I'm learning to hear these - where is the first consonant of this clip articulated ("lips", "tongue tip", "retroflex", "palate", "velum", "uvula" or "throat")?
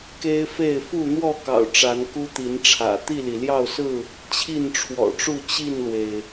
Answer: velum